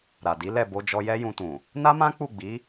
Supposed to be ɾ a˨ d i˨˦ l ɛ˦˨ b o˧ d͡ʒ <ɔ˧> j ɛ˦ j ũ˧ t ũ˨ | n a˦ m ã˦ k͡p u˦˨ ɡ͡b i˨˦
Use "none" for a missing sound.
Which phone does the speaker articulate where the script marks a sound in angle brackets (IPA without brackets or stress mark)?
ɔ˧